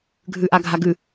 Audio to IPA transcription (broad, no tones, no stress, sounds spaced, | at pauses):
ɡʱ ʉ ʔ a ɡʱ a ɡ ʉ